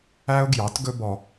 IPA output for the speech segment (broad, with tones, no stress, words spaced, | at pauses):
æ˦ʊ̯ɡjɑ˨˦tɡɵ˦bɔ˧